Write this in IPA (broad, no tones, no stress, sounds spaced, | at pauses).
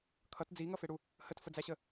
kʰ ʌ t d͡z i ŋ ʌ f e ɽ u | h ə t f ə d͡z æ ɕ ə